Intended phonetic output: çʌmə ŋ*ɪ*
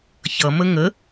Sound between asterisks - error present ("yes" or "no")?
yes